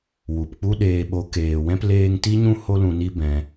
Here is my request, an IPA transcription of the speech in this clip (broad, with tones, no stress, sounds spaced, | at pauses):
w u˨ p k͡p u˦ ɗ eː˧ ɓ o˧ k eː˨ w ɛ̃˦ p l eː˧ ŋ t i˦ ɲ ũ˦ h o˦ l ũ˧ n i˦ b ɛ̃˧